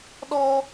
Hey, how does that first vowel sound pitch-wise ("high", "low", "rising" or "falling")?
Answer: high